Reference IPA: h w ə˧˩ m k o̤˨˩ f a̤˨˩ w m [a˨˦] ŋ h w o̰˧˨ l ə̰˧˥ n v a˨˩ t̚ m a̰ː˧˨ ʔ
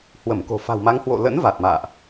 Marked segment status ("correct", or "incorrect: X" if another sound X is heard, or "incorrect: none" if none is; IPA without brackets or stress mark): correct